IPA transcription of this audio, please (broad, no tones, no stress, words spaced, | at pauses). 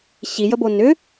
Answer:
ɕijəbo nʏ